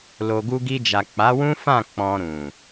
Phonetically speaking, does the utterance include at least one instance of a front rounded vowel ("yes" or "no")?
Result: no